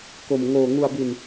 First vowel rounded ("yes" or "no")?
yes